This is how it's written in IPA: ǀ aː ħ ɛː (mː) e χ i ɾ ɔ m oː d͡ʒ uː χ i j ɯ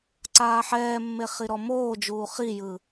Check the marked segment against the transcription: correct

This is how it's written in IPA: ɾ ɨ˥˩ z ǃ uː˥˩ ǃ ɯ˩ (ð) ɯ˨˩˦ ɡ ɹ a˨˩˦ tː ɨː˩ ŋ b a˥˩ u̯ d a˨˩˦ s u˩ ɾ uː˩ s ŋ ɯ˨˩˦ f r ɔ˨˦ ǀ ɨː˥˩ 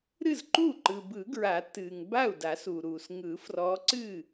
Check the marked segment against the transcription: incorrect: b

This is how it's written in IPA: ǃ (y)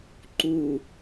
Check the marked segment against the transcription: incorrect: u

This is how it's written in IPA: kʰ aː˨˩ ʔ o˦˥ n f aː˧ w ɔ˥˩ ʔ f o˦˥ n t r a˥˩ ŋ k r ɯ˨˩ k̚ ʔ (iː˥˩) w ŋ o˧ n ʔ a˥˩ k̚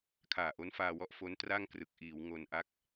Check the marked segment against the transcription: incorrect: iː˩˦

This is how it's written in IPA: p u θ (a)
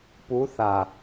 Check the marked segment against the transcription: correct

